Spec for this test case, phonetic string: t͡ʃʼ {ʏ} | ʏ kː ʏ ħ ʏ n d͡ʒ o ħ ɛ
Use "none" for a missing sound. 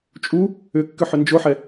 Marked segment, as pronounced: u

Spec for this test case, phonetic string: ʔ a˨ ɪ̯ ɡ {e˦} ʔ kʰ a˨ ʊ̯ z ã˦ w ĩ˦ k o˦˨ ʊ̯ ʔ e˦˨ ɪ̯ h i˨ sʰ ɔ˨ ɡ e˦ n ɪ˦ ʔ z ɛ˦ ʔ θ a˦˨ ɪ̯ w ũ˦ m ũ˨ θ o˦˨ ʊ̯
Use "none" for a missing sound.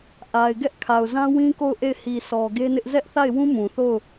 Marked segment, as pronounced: ɛ˦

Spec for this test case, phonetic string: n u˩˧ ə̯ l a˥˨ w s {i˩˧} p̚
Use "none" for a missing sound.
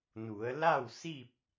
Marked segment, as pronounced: i˥˨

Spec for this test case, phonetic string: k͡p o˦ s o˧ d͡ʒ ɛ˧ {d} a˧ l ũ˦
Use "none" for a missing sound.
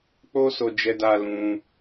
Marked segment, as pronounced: d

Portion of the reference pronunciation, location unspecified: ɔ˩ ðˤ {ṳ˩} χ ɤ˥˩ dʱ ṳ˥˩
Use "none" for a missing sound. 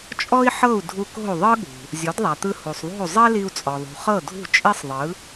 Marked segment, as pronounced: ṳ˩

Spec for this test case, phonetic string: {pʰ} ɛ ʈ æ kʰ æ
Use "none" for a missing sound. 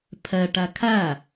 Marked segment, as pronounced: pʰ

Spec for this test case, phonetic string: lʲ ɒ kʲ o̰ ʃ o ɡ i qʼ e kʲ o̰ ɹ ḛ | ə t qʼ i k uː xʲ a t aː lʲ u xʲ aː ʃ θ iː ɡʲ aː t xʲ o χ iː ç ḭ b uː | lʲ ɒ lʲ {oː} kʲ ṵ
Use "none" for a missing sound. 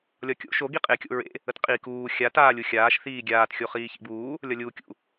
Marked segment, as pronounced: uː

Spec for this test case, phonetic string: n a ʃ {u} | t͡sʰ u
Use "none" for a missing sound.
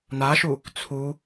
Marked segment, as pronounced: u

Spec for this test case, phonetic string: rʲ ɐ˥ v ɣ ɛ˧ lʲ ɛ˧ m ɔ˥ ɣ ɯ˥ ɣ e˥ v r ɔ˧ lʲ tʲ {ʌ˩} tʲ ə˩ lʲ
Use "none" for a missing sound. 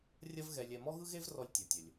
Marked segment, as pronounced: ʌ˩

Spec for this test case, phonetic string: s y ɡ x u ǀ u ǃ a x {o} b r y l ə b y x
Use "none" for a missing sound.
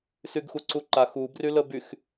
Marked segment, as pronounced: u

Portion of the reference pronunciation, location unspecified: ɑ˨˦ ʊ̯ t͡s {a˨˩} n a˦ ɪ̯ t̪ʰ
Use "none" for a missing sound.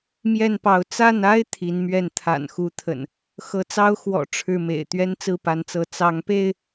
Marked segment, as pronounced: a˥˨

